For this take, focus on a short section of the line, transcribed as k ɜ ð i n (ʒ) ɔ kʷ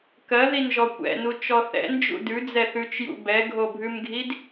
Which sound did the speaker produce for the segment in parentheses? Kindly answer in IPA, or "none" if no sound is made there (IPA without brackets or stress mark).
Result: ʒ